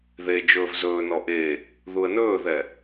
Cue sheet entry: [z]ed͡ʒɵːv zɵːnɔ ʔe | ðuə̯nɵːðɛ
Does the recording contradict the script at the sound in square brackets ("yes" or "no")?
yes